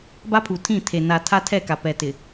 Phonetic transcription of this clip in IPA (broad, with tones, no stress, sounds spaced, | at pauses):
b a˦ pʰ u˨ tʰ ĩ˦˨ tʰ e˨ n a˨ tʰ a˦ tʰ ɛ˦˨ k a˨ p ɛ˨ t ɪ˨